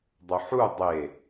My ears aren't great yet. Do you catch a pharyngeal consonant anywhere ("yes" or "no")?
yes